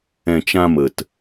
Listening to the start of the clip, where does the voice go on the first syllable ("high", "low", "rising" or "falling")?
low